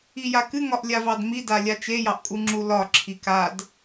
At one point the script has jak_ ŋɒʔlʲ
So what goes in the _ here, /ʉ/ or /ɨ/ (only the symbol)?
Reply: ɨ